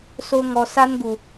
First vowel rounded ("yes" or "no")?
yes